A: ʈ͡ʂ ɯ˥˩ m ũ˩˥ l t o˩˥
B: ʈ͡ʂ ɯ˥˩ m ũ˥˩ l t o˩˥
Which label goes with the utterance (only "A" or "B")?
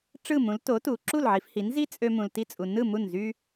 A